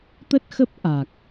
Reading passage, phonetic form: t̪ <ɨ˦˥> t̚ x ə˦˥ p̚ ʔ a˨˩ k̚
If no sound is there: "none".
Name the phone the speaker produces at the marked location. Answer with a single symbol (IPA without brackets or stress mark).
ə˦˥